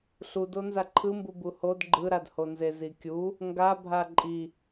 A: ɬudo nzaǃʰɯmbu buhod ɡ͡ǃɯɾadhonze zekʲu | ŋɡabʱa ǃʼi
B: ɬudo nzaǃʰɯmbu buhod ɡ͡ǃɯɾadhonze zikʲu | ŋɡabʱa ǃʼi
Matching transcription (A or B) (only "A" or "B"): B